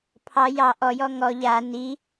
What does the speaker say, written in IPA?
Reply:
pʰ ɑ j ɑ ʔ ɔ j ɔ ŋ ɔ ʎ a n i

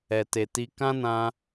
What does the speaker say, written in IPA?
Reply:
ɛ˨ t e˨ t i˧ k ã˦ n ã˧

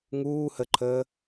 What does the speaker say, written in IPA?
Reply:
ŋ uː h ə ǃʰ əː

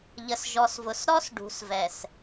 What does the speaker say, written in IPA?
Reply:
ʎ ə˨ s ʒ ɔ˨ s v ʊ˨ s ɾ ɔ˦ s ɖ ṳ˨ s v ɛ˨ s

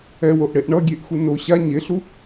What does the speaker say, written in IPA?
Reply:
ɛ w o ʔ ɽ e ʔ ɳ ʌ ɡʲ e ʔ x u n o ɕ a ɲ e ɬ u

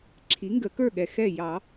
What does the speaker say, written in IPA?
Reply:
ǁʰ i˩˥ ŋ ɡ ə˨˩˦ k ə˞˥˩ ɠ ɛ˨ x ɛ˥˩ j ɑ˨˩˦

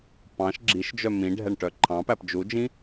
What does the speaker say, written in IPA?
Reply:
p ɑ̃ ʃ ɡ͡ǁ i ʃ d͡ʒ œ m ĩ ɖʱ ɛ ɳ ʈ œ ǃʰ ɑ̃ p æ p d͡ʒ u d͡ʒ ĩ

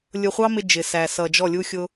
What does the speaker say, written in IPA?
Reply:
lʲ ʊ˧ χʷ ɑ˦ m ɪ˧ d͡ʒ ɪ˨ s æ˨ s ʌ˨ d͡ʒ ɔ˦˨ lʲ u˦ xʲ ʊ˦

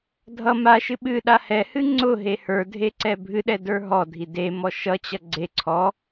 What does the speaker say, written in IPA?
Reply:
dʱ ʌ m a ʃ ɨ ɓ ɨ ɗ a h ɛ h ɨ ŋ͡ǀ ʊ ɦ e h ə˞ dʱ e ǀ ɛ bʱ ɨ ɗ ɛ d ə˞ ɦ ɔ dʱ i d e m ɔ ʃ ʌ t͡ɕ ʌ ɡ͡ǀ e ǀʰ ɔ

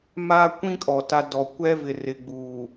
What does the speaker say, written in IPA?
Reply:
m aː˦ kʷ ĩ˦ kʼ ɔ˨ t a˦ d ɔ˨ kʷ ɛ˦ v ɪ˨ r ɪ˨ ɡ͡b uː˨

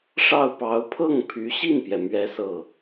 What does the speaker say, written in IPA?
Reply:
ʂ ɑ˥˩ ʊ̯ p ɑ˧˥ ʊ̯ pʰ ɤ˥˩ ŋ pʰ y˧˥ ɕ i˥˩ n p j ɛ˩ m ɥ ɛ˥ s ɤ˥˩

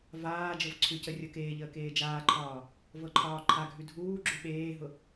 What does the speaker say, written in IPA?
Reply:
v aː d͡ʒ ɤ v ǀʰ ʉ c ə rʲ ɤ k eː ʎ əː k eː d͡ʒ aː ǃʰ ɒː | v ɤ ǃʰ ɒː ǃʰ a ɡʱ ʉ dʱ uː ɡ͡ǁ ʉ ɓ eː ɦ ʊ

